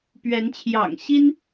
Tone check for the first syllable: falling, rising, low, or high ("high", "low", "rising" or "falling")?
rising